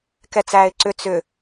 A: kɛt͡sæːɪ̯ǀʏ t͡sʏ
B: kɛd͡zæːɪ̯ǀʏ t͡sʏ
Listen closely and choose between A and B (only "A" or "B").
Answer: A